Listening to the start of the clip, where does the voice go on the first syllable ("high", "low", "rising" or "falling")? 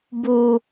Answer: high